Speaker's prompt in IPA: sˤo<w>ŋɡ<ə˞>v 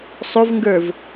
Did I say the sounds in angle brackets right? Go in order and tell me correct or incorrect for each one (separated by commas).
incorrect, correct